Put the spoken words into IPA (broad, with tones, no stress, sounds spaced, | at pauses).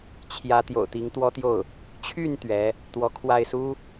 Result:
t͡ɕʰ j ä˧˥ t̪ j o̰˨˩ ʊ̯ t̪ i˧˥ ŋ t̪ w ɔ˥ t̪ j o˥˩ ʊ̯ | t͡ɕʰ y˥˩ n t̪ ɥ ɛ˧˥ | t̪ w ɔ˧˥ kʰ w a˥˩ ɪ̯ s u˥